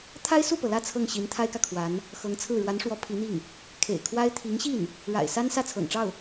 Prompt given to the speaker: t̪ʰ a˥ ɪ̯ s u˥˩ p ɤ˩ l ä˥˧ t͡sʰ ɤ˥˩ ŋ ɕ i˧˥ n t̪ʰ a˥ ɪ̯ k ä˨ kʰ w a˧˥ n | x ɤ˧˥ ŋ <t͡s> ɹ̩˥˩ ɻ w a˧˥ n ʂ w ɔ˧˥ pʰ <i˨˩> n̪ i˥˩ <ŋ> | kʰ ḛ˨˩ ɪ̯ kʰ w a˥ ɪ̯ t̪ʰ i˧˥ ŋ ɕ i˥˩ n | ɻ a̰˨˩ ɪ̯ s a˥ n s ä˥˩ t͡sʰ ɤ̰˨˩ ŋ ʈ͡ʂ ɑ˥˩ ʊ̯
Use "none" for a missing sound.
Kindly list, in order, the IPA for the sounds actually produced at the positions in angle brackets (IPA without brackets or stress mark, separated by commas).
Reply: t͡sʰ, i˧˥, ŋ